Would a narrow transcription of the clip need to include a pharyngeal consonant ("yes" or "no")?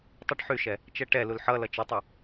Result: yes